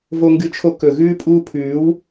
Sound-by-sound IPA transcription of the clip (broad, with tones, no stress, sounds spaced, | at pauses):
v o˧ ŋ ɡ ɨ˧ t͡ʃʰ o˧ k ɵ˨ ɣ ʉː˧ pʼ uː˧ pʰ ʉː˨˦ w